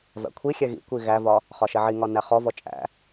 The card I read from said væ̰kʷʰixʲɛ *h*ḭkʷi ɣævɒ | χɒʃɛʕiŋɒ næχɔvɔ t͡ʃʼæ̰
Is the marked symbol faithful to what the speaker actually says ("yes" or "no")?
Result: no